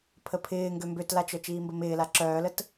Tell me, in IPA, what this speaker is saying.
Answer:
pʰ ə pʰ ɪː ŋ ɡ ø m b ø t l a t͡ʃ œ t͡ʃ iː m b ə m ɪː l a ǁ œː l ə t

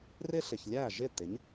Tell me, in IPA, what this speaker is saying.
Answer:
r ɪ˥ ɬ ɪ˩ ç lʲ æ˥˩ ʒ ɪ˥˩ t̪ ɪ˩˥ ɲ

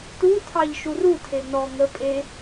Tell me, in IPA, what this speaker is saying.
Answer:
t u tʰ ɑ ʎ ʃ u r u tʰ e n ɔ ŋ ə pʼ e

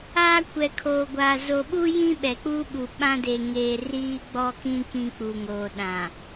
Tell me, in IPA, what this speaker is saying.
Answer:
aː˦ kʷ ɛ˨ kʰ oː˨ ɡʷ aː˨ z o˨ ɓ u˦ j ĩ˦ ɓ ɛ˨ k͡p uː˦ ɓ u˨ ɓ ã˦ d e˨ ŋ eː˨ r iː˦ ɡ͡b ɔ˦ k ĩ˦ k ĩ˦ k͡p u˨ ŋ oː˨ ɗ ã˨

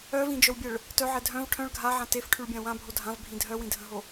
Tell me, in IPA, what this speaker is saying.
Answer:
œ v ĩ d͡ʒ œ w bʲ ɛ ɭ | t œ ʕ ɛ dʱ œ̃ v ʈʰ œ̃ ɭ ɡʱ a ʕ ã t e f ʈʰ y ɭ bʲ ã w ã bʱ o dʱ ã v bʱ ĩ dʱ œ w ĩ dʱ ə̃ ɦ o

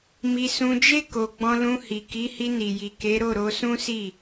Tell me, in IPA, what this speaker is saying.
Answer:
m i˧ s ũ˧ d͡ʒ e˦ k o˧ ɡ͡b ɔ̃˧ l ũ˧ h i˨ k i˨˦ h i˧ n i˨ j i˨ k e˨˦ ɾ o˦˨ ɾ o˧ s ũ˦ s i˦˨

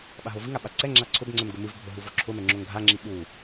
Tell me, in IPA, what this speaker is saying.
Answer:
ɓ a ɦ o v ɨ ŋ a ɓ a ǀ ɛ ŋ͡ǁ a ǀʰ ʊ b ŋ͡ǀ ɛ m ɡ ʊ m ɨ v bʱ ʊ ɦ u v o ǁʰ ʊ m ɛ ŋ͡ǁ o ŋ ɡʱ a ŋ͡ǁ i ɓ u

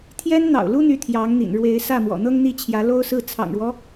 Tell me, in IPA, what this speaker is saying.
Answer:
t̪ʰ j ɛ˥ n n̪ ɑ̰˨˩ ʊ̯ l u˥ n̪ y˧˥ t̪ʰ j ɑ˧˥ ŋ n̪ ḭ˨˩ n ɻ w e˧˥ ɪ̯ s ä˥˩ m w ɔ̰˨˩ n̪ ɤ˥ ŋ n̪ i˥˩ t͡ɕʰ j ä˧˥ l o˥ ʊ̯ s ɹ̩˥˩ t͡sʰ ɑ̰˨˩ ŋ ɻ w ɔ˦

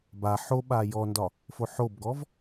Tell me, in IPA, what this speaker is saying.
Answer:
b a ħ o ɓ a j ɔ n d ɒ | f o ħ o b ɡ ɔ v

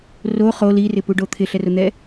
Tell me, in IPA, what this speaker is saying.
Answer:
r o χ o l i r ɪ p u ɖ o t̪ʰ ɪ ɬ ɛ r ʊ n̪ ɛ

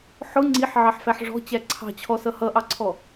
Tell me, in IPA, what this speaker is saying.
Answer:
ħ ʊ ŋ͡ǀ i ħ ʕ ɑ ħ f æ ħ ʐ ɔ̤ t͡ɕ æ ǀʰ ɑ̤ t͡ɕʰ ɔ s ʌ h ʌ ʔ ɑ ǀʰ ɔ

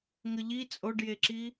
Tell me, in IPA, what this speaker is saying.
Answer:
ŋ ə ʎ i t͡sʼ o ɖ j e ǁ i

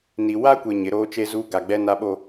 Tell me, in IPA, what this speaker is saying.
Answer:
n i˨ w a˦ kʷ e˨ ɲ ɪ˨˦ ɾ oː˦ t͡ʃ e˦ z uː˦ ɡ a˨ ɡ͡b ɛ˦ n a˦ ɓ o˦

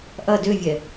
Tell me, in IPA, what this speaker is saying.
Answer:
ʔ ɐ d ø vʲ ɛ

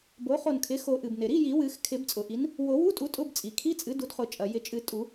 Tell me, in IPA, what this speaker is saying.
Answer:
b o˩˥ χ o˧˩ n kʰ ɪ˩˥ x o˨˩˦ ʔ ɨ˩ b n ɪ˩ ɾ i˧˥˧ j i˨˩˦ w ɨ˨˩˦ x kʰ ɪ˨˩˦ b t͡sʼ ʊ˩ ʔ i˩˥ n | w o˨˩˦ w u˧˥˧ tʼ u˩˥ tʼ ʊ˧˥˧ b t͡sʼ i˩ kʰ i˧˥˧ t͡sʼ ɨ˩˥ d u˩˥ d χ ʊ˨˩˦ t͡ʃʼ ɐ˩ j ɪ˨˩˦ t͡ʃʼ ɨ˨˩˦ tʼ u˨˩˦

